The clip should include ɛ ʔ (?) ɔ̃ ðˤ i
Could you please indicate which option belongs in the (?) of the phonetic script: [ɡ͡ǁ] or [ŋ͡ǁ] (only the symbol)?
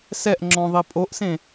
ŋ͡ǁ